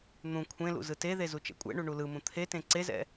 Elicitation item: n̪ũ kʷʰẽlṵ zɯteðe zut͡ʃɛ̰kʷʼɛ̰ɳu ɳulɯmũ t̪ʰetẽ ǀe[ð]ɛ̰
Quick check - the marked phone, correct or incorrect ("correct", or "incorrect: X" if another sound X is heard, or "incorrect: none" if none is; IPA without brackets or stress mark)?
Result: incorrect: z